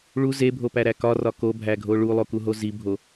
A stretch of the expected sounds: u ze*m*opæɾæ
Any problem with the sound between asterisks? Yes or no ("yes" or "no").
yes